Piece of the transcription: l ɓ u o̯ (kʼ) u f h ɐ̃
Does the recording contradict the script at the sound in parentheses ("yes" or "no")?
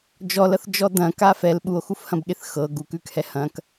yes